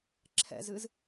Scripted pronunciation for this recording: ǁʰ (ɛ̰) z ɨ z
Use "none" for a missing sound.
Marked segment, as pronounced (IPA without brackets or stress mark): ɛ̰